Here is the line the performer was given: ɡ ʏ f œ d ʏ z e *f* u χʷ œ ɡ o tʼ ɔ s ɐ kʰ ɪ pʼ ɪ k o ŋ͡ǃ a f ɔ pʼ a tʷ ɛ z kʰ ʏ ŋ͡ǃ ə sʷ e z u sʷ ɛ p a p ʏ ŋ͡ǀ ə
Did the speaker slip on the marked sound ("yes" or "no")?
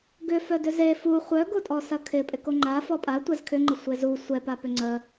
no